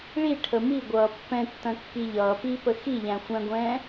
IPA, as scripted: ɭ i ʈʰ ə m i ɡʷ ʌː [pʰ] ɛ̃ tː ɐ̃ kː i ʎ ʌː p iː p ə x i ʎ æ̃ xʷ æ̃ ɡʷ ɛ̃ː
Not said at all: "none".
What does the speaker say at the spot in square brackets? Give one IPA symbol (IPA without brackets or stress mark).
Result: pː